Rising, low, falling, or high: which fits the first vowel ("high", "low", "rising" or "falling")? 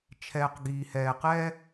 low